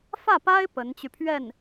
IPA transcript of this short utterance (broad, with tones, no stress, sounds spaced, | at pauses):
f ä˥˩ p a˥ ɪ̯ p ə˧˥ n t͡ɕ y˧ pʰ ɥ ɛ˥˩ n